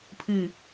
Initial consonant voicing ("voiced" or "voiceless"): voiceless